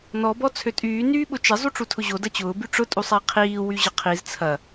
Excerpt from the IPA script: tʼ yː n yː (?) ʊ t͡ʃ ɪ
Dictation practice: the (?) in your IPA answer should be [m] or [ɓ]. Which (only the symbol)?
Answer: ɓ